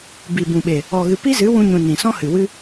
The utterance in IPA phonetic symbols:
b i˨ b ũ˨ ɓ e˨ | ɔ˨ ɣ ɨ˨ p i˦ z ɨ˨˦ w ũ˧ ɲ ũ˨ n ĩ˨ s ɔ̃˦ h ɨ˨ w ɨ˧

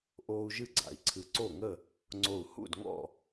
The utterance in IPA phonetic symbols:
ʔ oː˦ u̯ ʒ ɨ˥˨ ɡ͡ǀ a̰˧˩ i̯ ǀʰ ɨ˧˩ ǀ o˥˨ ŋ ə˥˨ | ŋ͡ǀ o˧˩ u̯ h ṵ˥˨ d ŋ ɔ̰˥˨

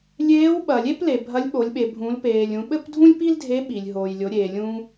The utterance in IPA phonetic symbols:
lʲ eː˧˥ w ɓ ɐ˩ lʲ e˥ p l e˩ bʱ ɐ˧˥ lʲ ɓ o˩˧ lʲ ɓ e˩ bʱ ũː˩˧ l p eː˩ lʲ ũ˩˧ ɓ ɘ˥ p dʱ ũ˥ lʲ p i˥ l dʱ e˧˥ ɓ i˩ lʲ ɦ oː˩ j lʲ o˩˧ ɾʲ eː˩ lʲ ũː˧

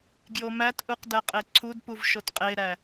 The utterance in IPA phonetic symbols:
ɡ j o m æ t ʔ u q d æ qʼ e ǀʰ u d p u v ʃ o t qʼ e ɾ æ

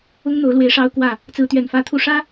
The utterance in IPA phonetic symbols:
ʊ˦ ŋ n̪ o˨˦ ʊ̯ l w e˨˦ ɪ̯ ʂ ɑ˦ ʊ̯ k w ä˥˨ | t͡s ɹ̩˨˦ t̪ ɥ ɛ˨˩ n f ä˨˦ t̪ʰ u˨˦ ʂ ä˦

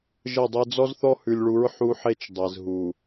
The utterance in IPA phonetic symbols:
ʒ ə˦˨ dˤ e˦ d͡z ɔ˦ z θ ɔ˦ h ʉ˨ lʲ ɭ u˨˦ ɹ ħ u˦ ħ e˦ t͡ʃ dˤ ɛ˨ z ɦ u˨

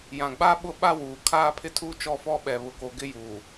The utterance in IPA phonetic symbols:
j ã˨ ɡ͡b a˦ ɓ ʊ˦˨ ɓ a˦ w uː˨ kʰ aː˦ pʰ ɪ˦ tʰ uː˦ t͡ʃ ɔ˦˨ f ɔ˦ ɓ ɛ˨ β ʊ˨ k o˨ ɡ ɪ˦ j uː˨

